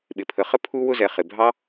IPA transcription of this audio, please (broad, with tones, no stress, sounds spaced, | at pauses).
ɓ ɪ˨ pʰ ə˨ χ ə˦ pʰ u˦ w ʊ˧ z ɛ˨ χ ɪ˨ bʱ ɑ˦